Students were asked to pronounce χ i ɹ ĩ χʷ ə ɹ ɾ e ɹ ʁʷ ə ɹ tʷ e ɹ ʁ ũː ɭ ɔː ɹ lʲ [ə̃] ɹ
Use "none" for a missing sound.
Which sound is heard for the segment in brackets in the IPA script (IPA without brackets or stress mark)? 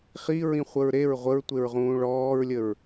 ə